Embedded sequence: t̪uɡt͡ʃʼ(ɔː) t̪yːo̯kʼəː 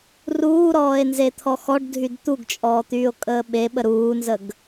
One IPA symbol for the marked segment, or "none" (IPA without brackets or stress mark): ɔː